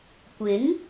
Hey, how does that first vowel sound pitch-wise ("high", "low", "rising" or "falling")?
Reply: rising